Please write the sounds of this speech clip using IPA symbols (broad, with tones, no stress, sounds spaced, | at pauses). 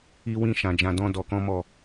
i˦ w ĩ˦ ʃ ã˧ d͡ʒ ã˧ d ɔ̃˦ d ɔ˧ k ɔ̃˦ m ɔ˦˨